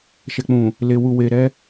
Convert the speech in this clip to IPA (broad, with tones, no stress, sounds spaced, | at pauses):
ʃ ɛ˨ k͡p ũ˨ | l e˨ w u˨ w e˨ ɾ ɛ˧